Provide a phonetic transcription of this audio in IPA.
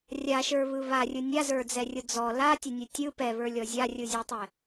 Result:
rʲ a ʃ ə˞ β ɯ β a rʲ ɯ nʲ a z ə˞ d͡z ɛ rʲ ʊ d͡z ɔ l a tʲ ʊ nʲ ɯ tʲ ɯ p ɛ β ə˞ lʲ ɔ zʲ a rʲ ɯ zʲ ø tˤ ɛ

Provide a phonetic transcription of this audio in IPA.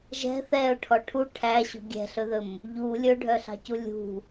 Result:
ʒ ɛ̤ θ ɛ ʊ̯ ʈʰ ɔ ʈʰ u ʈʰ æ ɕ ṳ ɡʲ ɛ̤ ɬ ɵ ð ɵ m | ʎ u lʲ ɵ ɖʱ œ ɬ ɑ̤ c u lʲ ṳ

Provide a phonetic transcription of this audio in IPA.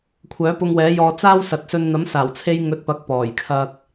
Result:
kʷʰ œː˨˥ p ʊ˧ ŋ w ɛː˨˥ j ɔː˧ t͡s aː˥ w s ɐ˨ t̚ s ɵ˧ n n̪ ɐ˨˥ m s aː˨˩ w t͡sʰ e˧ j ŋ ɵ˧ t̚ p ɐ˨˥ k̚ p ɔː˨˩ j kʰ ɐ˧ k̚

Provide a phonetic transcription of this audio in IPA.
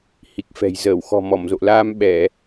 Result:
h i˨˩ k̚ f ɛ̤˨˩ j z əː˧˩ w x ɔ̤˨˩ m ɔ˧˩ m z o̰˧˨ l aː˧ m ɓ ɛ˧˩˨

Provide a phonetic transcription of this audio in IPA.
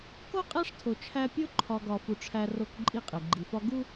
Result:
k o˦ qʼ æ˦ ʂ tʰ o˨ t͡ʃʰ æ˦ pʲ o˦ ǃʰ ɒ˨ ɡ ɒ˨ f u˨ ʈ͡ʂʰ æ˨ r o˨ k ǃʼ i˦˨ qʼ e˨ ɡ͡ǃ i˨ f ɒ˦ ɡ u˦

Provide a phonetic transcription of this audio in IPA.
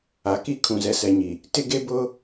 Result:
a˨ k i˦ kʰ ũ˨ z ɛ˨ s ɛ˨ ɲ i˨ | t ɪ˦ ɡ e˦ b ʊ˦

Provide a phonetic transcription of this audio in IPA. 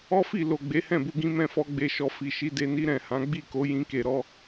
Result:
ɔ˦ f i˦˨ l o˨ ɡ͡b e˨˦ h ɛ̃˦˨ b u˧ ɡ ĩ˦ m ɛ̃˦ f ɔ˦ ɡ͡b e˧ ʃ ɔ˧ f i˨ ʃ i˨˦ d e˧ n i˦ ɾ ɛ̃˦˨ h ã˨˦ ɡ͡b i˦˨ k o˨˦ j ĩ˧ k e˧ ɾ ɔ˦

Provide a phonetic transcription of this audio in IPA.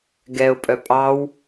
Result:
ɡ ɛ ʊ̯ pʼ œ pʼ ɑ w

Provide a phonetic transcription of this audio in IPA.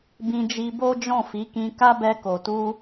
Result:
b ĩ˧ d͡ʒ i˧ b o˦ d͡ʒ ɔ̃˦˨ f i˨˦ k ĩ˧ k a˦ b ɛ˧ k o˨ t u˧

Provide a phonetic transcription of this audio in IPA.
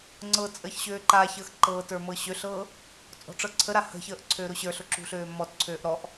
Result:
ŋ͡ǀ ɤ t͡sʼ əː ç ɕ øː ǃ a ç əː x ǃ ɤː t ə˞ m ɤ ɕ ø ɬ ɤː | t͡sʼ ɔ̤ ʈ͡ʂ ɤ ǀʰ ə ɾ a h ə̤ ç əː ʔ ǀʰ øː ɾ ʊ ɕ ə˞ ɬ ʊ ǁ ṳ ɬ øː m ɔ t ǀʰ øː ʔ ɾ ɔ ʔ

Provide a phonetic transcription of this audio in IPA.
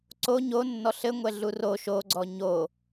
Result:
ǀ o ɲ o nː ɔ ɬ ɘ ŋʷ ɛ ɮ u r o ʃ o ɡ͡ǀ ɔ ɲ o

